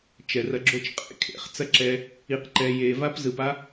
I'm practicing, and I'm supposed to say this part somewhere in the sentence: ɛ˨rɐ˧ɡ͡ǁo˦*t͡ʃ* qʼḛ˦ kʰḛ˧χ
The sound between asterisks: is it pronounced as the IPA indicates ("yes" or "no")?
yes